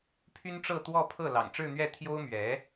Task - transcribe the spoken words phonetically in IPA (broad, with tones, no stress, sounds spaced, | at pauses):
pʰ y˥ n ʈ͡ʂ ɤ˥˧ t̪ w ɔ˥˧ pʰ ɤ˥˩ l ɑ̰˨˩ ŋ ʈ͡ʂ ɻ̩˥˧ n̪ ɥ ɛ˥˩ t̪ʰ j o˥ ʊ̯ m ɥ ɛ˧˥